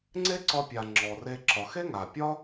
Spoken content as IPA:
ŋ͡ǀ e˦ ǀ ɒ˧ pʲ a˨ ŋ͡ǁ ɔ˨ r e˧ ǁ ɒ˨ x e˦ ŋ a˨ pʲ ɒ˦

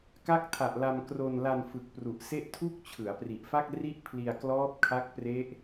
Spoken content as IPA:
k a˦˥ k̚ tʰ a˨˩ ʔ l a˧ m k r o˧ n l a˧ n f ɯ˨˩ k̚ p r u˨˩ ʔ s e˥˩ ʔ tʰ u˥˩ k̚ t͡ɕʰ ɯ˩˦ a̯ p r i˨˩ ʔ f a˥˩ k̚ r i˥˩ ʔ pʰ l i˧ a̯ k l ɔː˦˥ p̚ kʰ a˦˥ k̚ p r e˦˥ ʔ

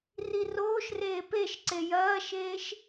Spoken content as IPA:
r i r oː ʃ r eː p e ʃ ǀ e j ɐː ʃ eː ʃ

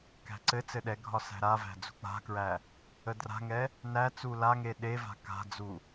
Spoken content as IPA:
k æ̤ ǀ ɘ t͡s ɘ ɗ ɛ ɡʱ ɒ s æ̤ ɾ a v æ̤ d͡z ṳ k͡p a̤ k ɹ æ | ə d r a̤ ŋ ɛ | n æ t͡s u l a ŋ e ɗ e v a̤ k a̤ d͡z u

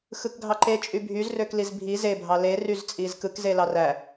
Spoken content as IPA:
x ɯ k ɡʱ ɑ ǃ e t͡ʃʼ y bʱ y z r ø k l i z bʱ i z e bʱ ɑ l e r y z t͡sʼ i z k ɯ k z e l ɑ r æ

